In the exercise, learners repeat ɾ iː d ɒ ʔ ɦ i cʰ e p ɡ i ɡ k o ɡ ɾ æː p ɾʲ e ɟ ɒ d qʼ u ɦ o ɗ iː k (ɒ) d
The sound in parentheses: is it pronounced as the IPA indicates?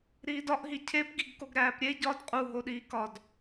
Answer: yes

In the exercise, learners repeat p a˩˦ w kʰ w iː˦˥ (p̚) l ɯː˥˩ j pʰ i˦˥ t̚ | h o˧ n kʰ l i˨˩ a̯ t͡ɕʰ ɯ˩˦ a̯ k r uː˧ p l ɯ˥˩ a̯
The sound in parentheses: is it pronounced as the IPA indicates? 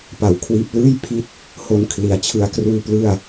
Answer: yes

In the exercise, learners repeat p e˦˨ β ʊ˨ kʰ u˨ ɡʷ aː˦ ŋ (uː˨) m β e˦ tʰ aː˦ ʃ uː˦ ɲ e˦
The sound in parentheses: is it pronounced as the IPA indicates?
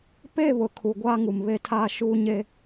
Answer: no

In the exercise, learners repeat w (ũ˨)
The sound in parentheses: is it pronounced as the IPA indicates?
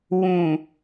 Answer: yes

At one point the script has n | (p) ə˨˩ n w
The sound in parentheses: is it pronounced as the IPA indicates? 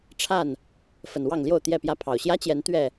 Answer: no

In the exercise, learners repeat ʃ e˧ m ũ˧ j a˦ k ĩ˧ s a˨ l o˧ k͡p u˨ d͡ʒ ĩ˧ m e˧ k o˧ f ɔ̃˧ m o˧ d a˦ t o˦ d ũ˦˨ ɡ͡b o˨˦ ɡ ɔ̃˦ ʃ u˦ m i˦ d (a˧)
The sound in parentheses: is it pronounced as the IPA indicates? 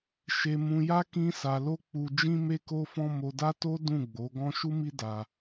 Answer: yes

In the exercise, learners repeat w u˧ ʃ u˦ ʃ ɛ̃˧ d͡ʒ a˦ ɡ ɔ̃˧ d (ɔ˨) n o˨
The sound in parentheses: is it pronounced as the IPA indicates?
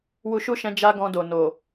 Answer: no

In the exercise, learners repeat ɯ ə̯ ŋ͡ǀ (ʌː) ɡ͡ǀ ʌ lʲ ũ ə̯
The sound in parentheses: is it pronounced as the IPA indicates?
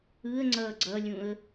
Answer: yes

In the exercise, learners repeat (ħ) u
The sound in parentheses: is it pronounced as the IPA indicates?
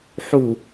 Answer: yes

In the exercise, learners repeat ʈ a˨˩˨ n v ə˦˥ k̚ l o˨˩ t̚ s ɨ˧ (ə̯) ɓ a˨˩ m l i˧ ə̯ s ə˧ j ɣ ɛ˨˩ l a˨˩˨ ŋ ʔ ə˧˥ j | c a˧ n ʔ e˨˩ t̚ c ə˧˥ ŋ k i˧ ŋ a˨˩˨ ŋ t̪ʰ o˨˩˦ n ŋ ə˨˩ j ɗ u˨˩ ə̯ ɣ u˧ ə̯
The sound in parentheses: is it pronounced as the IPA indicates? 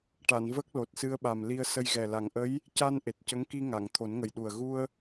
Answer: yes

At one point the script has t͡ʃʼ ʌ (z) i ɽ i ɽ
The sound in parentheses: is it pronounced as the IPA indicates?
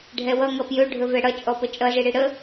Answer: yes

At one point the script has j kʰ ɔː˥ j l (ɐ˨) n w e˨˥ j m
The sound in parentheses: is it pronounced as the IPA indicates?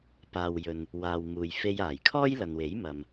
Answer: yes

